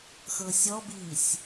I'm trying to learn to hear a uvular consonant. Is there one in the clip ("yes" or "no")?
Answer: no